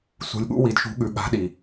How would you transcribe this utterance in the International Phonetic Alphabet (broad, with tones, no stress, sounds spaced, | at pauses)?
s ṳ˨ lʲ ɠ ṵ˦ w i˨ d ʃ ṳ˨˦ ɠ ʉ˨ ɠ a̤˨˦ ɗ i˨